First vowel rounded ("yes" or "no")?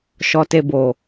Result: yes